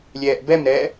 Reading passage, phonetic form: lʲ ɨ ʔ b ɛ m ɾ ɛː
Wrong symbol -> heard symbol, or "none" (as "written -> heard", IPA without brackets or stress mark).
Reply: ɨ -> ɛ